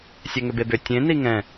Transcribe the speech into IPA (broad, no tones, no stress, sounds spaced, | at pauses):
sʲ ɛ ŋ ʏ b e b ʏ tʲ ẽ n i ŋ ɛ̃